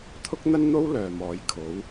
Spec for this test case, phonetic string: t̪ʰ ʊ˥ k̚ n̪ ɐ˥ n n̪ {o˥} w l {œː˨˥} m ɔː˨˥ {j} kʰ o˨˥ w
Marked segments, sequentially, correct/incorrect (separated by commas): correct, incorrect, correct